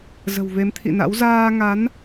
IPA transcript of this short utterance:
z ə̤˨˩ w v e˨˦ m t̪ʰ ḭ˧˨ n a̰˧˥ w z aː˧ ŋ a˨˦ n

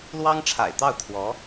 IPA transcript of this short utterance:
l w ɑ˥ ŋ ʈ͡ʂʰ a̰˨˩ ɪ̯ t̪ ɑ˥˩ ʊ̯ t̪ʰ w ɔ˧˥

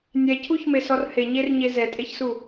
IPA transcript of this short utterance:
nʲ ɛ cʰ u ç m e s ɔ r h e ɲ e r ɲ e z ɛ tʼ e ç s u

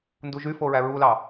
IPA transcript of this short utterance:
n d u ʒ y f o ɹ æ ɹ u l ɑ

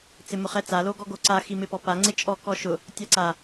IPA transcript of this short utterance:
t͡s ɪ m ʊ χ ɛ t͡s a l o ɡ ɔ ɡ o ǀ a x i m ɪ p ɔ p a ŋ͡ǀ ɪ t͡ʃʼ ɔ k ɔ ʃ ʊ | tʲ a ǀ a

